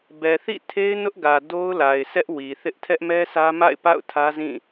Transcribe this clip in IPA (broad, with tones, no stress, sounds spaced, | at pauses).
b ɛ˨ θ ḭ˦˨ tʰ e˦ ɪ̯ n ʊ˦ ʔ ɡ ä˨ d o˦ ʊ̯ l a˨ ɪ̯ s ɛ˦ ʔ w i˨ θ ɪ˦ ʔ tʰ ɛ˦ ʔ m ɛ˦ sʰ ä˦ m a̰˦˨ ɪ̯ p a̰˦˨ ʊ̯ tʰ ä˦ z ĩ˦˨